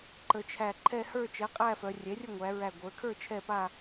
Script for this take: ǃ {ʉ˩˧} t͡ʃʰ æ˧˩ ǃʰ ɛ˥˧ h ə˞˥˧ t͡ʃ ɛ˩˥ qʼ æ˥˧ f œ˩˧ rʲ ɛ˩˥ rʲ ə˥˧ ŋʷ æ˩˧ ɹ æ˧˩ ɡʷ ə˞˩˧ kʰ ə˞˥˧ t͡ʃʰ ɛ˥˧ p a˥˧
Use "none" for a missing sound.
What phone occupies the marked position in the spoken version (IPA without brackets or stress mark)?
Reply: ə˩˧